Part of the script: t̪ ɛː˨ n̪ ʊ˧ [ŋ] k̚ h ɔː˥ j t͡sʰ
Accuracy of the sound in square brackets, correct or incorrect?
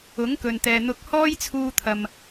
incorrect: none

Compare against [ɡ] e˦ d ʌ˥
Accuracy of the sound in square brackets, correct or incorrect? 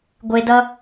incorrect: ɡʷ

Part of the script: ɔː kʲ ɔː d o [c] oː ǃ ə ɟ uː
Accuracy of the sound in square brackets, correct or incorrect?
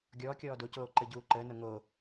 correct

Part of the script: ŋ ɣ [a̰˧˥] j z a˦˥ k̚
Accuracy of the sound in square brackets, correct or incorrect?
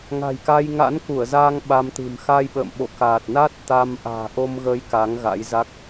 correct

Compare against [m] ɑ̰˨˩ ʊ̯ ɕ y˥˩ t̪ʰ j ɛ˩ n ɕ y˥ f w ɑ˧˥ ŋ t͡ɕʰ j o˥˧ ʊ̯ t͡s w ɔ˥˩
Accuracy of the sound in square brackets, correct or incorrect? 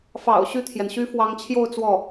incorrect: f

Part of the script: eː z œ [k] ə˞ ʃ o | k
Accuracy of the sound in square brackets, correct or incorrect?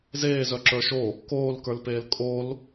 incorrect: ǁ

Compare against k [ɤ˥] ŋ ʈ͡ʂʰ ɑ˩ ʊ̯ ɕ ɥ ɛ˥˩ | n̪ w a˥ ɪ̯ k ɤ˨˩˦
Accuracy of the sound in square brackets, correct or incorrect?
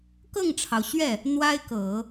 incorrect: ɤ˥˩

